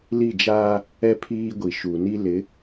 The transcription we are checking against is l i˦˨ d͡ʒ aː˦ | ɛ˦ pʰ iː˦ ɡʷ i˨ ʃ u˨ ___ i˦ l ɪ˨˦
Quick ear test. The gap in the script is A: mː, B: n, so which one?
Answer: B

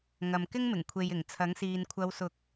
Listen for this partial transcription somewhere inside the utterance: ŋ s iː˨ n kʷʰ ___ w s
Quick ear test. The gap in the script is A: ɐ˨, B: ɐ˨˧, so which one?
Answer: B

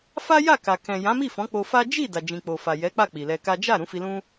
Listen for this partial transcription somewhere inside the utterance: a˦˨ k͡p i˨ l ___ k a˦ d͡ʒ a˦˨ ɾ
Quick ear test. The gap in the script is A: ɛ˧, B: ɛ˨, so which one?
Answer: A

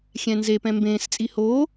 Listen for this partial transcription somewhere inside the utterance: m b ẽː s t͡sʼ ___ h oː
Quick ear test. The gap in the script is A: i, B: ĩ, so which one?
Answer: A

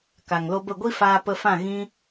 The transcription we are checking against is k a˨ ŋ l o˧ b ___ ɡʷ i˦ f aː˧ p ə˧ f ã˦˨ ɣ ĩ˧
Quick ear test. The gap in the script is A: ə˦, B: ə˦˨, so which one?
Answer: B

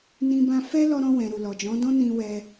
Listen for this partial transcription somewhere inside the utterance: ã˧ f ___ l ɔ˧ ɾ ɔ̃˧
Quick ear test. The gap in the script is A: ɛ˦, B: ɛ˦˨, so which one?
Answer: A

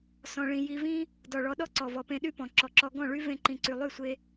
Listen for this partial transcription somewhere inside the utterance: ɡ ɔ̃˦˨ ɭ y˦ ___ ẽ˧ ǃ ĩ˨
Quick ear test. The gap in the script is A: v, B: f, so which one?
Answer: A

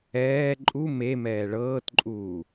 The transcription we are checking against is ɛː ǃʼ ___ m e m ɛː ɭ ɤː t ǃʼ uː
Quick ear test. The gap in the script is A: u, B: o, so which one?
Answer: A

